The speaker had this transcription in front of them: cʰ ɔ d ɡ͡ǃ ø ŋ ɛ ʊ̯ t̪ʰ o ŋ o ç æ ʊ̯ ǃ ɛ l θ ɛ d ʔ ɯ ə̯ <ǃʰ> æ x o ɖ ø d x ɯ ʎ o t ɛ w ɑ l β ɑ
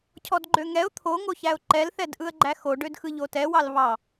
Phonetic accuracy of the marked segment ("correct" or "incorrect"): incorrect